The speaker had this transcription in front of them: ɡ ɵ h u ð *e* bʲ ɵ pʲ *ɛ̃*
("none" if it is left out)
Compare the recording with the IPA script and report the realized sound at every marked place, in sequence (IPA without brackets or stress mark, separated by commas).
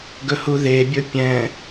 e, ɛ̃